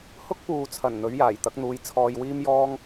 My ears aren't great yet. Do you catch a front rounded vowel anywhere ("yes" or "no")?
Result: no